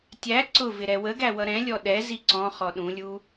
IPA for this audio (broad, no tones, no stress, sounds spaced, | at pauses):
tʲ æ ǀ ʊ v ɪ ɾ ɛ w ə ɡ æ w ʌ ɾ ɛ̃ lʲ ɔ ɗ ɛ z i ǀ ɔ̃ χ ɔ ɗ ũ lʲ u